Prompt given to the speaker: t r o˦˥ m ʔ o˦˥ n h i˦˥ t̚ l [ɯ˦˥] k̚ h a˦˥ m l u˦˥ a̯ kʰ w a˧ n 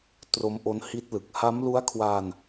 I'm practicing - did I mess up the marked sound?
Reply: yes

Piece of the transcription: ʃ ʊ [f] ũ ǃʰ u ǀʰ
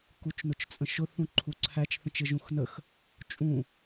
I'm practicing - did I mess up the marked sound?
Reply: yes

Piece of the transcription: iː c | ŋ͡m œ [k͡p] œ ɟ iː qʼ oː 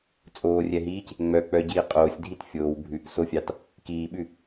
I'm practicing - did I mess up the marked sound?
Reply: no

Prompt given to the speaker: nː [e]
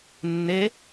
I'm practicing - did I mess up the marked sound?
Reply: no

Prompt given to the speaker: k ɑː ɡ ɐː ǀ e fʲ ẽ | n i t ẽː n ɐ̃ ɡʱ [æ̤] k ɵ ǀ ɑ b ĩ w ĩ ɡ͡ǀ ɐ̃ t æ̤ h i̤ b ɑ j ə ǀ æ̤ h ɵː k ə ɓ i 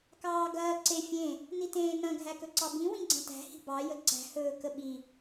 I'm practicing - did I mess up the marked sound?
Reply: yes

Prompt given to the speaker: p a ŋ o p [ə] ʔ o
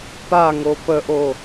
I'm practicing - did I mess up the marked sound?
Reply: no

